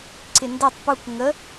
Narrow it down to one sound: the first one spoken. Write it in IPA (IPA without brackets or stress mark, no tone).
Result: ǀ